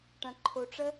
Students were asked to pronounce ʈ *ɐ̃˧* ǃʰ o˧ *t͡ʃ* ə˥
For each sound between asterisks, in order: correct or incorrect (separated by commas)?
correct, incorrect